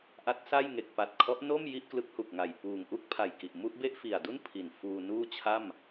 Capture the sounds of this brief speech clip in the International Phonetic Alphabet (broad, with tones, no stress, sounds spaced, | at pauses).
ʔ a˦˥ t̚ s a˥˩ j ŋ e˨˩ k̚ p a˨˩ t̚ kʰ ɔ˦˥ ʔ n o˥˩ m j i˥˩ ʔ k l ɯ˦˥ k̚ h u˨˩ k̚ ŋ a˨˩ j p uː˨˩ ŋ ʔ u˥˩ k̚ pʰ a˨˩ j k i˨˩ ʔ m u˥˩ ʔ b e˥˩ ʔ f i˨˩ a̯ d u˥˩ n pʰ i˨˩ n f uː˧ n uː˥˩ t͡ɕʰ a˥˩ m